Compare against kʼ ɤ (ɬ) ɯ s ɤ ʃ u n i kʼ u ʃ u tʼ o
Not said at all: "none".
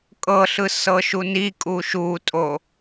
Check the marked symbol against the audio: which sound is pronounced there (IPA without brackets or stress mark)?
ɬ